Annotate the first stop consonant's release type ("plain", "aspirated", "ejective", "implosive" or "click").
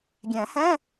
plain